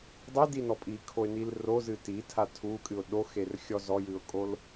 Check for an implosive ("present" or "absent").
present